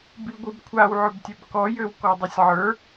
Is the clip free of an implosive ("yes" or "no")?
yes